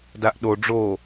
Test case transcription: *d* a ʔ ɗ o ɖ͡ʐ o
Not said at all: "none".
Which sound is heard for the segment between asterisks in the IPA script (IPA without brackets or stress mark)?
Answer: d